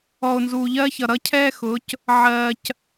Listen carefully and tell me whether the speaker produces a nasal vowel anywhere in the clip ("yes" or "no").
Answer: no